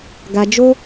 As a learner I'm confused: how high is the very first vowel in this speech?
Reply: low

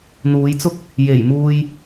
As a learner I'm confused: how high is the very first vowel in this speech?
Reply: high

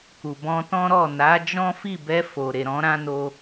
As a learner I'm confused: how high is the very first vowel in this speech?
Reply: high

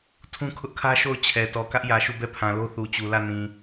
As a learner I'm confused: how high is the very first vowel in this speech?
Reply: high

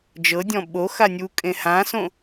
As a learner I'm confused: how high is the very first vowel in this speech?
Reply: mid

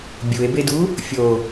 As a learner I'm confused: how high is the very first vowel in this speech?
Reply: high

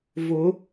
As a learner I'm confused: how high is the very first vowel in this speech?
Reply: high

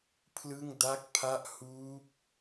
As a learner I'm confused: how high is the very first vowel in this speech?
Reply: high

